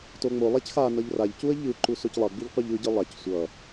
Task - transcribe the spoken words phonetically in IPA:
t o ŋ͡m o lˠ a c x a n ʌ ʎ r a ʎ c u ə̯ ʎ ɯ ǃ u s o c lˠ ʌ ɡ͡b i ʎ qʷ ɛ ʎ ɯ ɟ ɯ lˠ a c sʷ ʌ

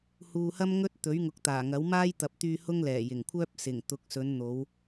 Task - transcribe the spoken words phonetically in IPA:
h uː˨ h ɐ˥ m ŋ ɵ˧ t̚ t̪ ɵ˨˥ ɥ ŋ ʊ˨˥ k̚ t̪ aː˨˩ ŋ ɐ˨˥ w m aː˥ j t̪ ɐ˨ p̚ t̪ yː˧ h ʊ˥ ŋ l ɛː˨˩ j ɪ˨˩ ŋ kʷʰ œː˥ p̚ s ɪ˨˩ ŋ t̪ ʊ˨˥ k̚ s ɵ˨˧ n n̪ o˨˧ w

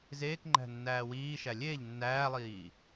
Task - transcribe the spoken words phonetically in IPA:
z eː k ŋ͡ǃ æ̤ nː æː w iː ʃ æ lʲ eː ʎ nː æː lˠ iː

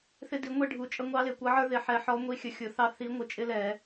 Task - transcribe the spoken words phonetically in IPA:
θ ɪ˦ d i˨˥ ŋʷ ɛ˦ ɖʱ u˨˥ t͡ʃʼ ə˦ ŋʷ ɑ˦ l ɪ˧˩˧ kʷ ʌ˨˥ ʕ ə˞˦ ð ɪ˧˩˧ ħ ɛ˨˥ ħ ɔ˨˥ ŋʷ i˦ xʲ ə˨˥ xʲ ʊ˨˥ θ ɑ˦ θ i˨˥ ŋʷ ɪ˨˥ t͡ʃʼ ɪ˦ l ɛ˧˩˧

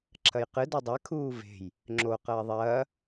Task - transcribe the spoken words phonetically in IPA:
ǁʰ ɐ j q ɨ d o dˤ ɛ kʰ uː v e̤ j | ŋ͡ǁ o q ɐː ðˤ ɐː

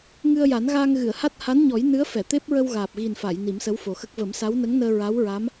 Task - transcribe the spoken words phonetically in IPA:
ŋ ɨ˧ ə̯ j a˨˩˦ n ɣ aː˧ ŋ ɣ ɨ˨˩˨ ə̯ h a˦˥ t̚ h a˧˥ n ɲ ɔ˨˩˦ j n ɨ˧˥ ə̯ f ɛ˨˩˨ t̪ e˦˥ p̚ ɹ ə˧ w ɣ aː˨˩ p̚ ɣ i˨˩ n f a˨˩˨ j n i˨˩˦ m s ə˧˥ w f o˨˩ x ə˦˥ k̚ v ə˨˩˦ m s a˧˥ w n ə˧˥ ŋ n əː˧ ɹ a˧˥ w ɹ a˧˥ m

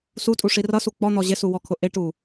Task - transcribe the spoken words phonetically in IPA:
s u tʼ u ʂ i r ʌ s u k͡p ɔ n̪ ɔ ʑ ɪ s u w ɔ kʰ ʊ ʔ ɪ ʈ u

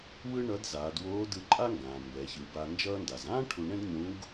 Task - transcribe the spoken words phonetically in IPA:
w ɯ˥ ɳ ʌ˧˥ d z aː˩˧ d w oː˧˥ d ɯ˧ ǃʼ a˥ ŋ ɡ ãː˩ m b ɛ˩˧ ç ɯ˩˧ b a˧ n d͡ʒ ʌː˧ n d a˩ z ãː˥ ʈʰ u˧ ɳ ɛ̃˥ d ɲ ũ˧˥ ɡ

